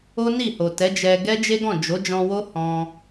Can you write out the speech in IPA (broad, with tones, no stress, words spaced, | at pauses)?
o˦ni˦˨ho˨ tɛ˨˦d͡ʒɛ˧ ɡɛ˦ d͡ʒe˦ɡɔ̃˦˨ d͡ʒo˨˦d͡ʒɔ̃˧wo˦ hɔ̃˧